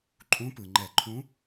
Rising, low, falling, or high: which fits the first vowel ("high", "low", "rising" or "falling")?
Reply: rising